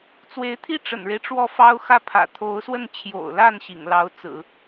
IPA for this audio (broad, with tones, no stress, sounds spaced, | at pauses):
t͡s w e˧˥ ɪ̯ t̪ʰ i˥˩ ʈ͡ʂ ə̰˨˩ n ɻ e˦ ɪ̯ ʈ͡ʂ w ɔ˥˩ f ɑ˥ ʊ̯ x ä˥˩ pʰ ä̰˨˩ t̪ʰ o˧˥ ʊ̯ s w ə˥˩ n t͡ɕʰ j o̰˨˩ ʊ̯ l a˥˩ n ɕ ḭ˨˩ ŋ l ɑ˧˥ ʊ̯ t͡s ɹ̩˨˩˦